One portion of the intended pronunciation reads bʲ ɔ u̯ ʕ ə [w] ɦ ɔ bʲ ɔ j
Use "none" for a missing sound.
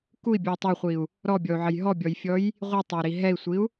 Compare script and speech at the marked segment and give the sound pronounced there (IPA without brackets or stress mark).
j